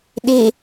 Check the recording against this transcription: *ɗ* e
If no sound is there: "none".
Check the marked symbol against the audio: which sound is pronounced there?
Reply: ɗ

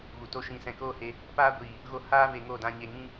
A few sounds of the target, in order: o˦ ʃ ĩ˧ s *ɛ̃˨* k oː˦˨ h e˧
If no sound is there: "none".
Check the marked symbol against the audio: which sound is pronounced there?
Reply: ɛ̃˨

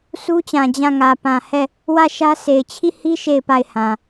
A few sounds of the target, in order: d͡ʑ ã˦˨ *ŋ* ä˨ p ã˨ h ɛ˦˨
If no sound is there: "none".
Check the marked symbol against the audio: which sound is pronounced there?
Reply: ŋ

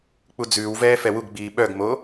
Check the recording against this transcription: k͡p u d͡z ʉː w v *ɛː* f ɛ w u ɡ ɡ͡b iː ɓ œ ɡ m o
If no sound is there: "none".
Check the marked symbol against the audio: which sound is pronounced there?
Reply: ɛː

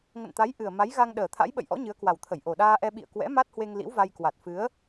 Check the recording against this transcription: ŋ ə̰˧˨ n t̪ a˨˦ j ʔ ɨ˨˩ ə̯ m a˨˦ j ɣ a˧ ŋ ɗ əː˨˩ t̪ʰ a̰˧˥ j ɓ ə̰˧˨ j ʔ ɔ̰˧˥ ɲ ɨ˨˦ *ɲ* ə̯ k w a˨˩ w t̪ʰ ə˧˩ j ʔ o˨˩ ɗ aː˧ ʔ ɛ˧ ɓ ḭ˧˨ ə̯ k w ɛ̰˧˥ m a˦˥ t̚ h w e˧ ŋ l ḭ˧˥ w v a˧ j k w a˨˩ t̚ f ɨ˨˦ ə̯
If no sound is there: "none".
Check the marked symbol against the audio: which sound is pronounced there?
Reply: none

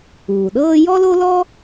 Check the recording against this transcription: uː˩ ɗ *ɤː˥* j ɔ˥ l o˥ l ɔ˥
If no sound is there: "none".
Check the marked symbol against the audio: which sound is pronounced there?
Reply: ɤː˥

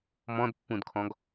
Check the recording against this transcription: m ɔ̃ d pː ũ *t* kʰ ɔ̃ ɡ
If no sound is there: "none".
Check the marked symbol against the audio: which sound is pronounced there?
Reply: d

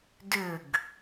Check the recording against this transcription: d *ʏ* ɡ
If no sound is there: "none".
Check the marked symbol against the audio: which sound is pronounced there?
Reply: ʏ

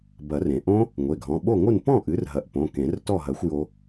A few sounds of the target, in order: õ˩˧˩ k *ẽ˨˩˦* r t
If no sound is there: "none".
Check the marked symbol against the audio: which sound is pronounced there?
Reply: ẽ˨˩˦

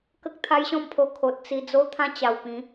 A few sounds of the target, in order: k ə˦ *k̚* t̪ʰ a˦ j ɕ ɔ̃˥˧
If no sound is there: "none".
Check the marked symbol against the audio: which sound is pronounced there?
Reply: k̚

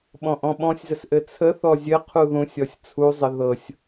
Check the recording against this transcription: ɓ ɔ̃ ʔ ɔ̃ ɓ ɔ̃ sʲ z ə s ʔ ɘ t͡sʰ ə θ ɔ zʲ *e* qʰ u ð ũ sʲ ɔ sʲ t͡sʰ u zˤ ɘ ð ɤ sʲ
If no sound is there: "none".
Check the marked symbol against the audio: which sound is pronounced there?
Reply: ɘ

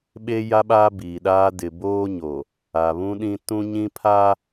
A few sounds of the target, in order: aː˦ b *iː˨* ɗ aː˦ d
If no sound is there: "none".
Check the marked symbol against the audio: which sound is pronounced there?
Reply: iː˨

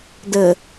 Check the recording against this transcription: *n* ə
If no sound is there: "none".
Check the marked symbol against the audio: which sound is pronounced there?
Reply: d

